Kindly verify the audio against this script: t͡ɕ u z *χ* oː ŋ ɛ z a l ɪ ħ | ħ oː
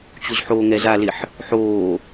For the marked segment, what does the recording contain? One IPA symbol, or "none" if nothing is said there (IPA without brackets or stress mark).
ħ